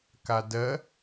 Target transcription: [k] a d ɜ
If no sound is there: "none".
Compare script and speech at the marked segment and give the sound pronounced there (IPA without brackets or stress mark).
k